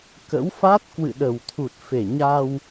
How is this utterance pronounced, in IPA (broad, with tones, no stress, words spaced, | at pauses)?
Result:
kə̰˧˥wfa˦˥t̚ kwɨ̰˧˨ɗə˨˩wt̪ʰu˨˩t̚ fe˨˩ ɲa˧w